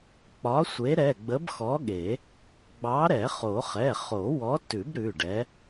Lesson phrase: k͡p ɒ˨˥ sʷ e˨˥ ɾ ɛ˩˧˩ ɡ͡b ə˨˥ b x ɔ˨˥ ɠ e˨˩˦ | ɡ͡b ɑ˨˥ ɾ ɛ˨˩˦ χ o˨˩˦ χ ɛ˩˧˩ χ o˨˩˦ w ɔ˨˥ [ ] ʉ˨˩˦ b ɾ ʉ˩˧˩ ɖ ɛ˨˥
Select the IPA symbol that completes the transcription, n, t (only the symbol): t